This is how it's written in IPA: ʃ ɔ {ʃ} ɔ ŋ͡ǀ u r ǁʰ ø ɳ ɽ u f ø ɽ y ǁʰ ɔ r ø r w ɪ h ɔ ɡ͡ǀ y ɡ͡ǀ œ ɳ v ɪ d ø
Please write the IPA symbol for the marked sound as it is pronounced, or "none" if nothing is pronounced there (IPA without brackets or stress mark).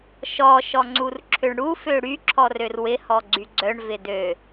ʃ